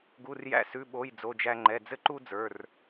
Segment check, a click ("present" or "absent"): present